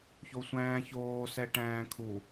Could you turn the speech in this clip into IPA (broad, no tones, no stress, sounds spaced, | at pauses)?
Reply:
ç o sʷ æ̃ː ç oː s ɛ ʈ æ̃ː kʰ u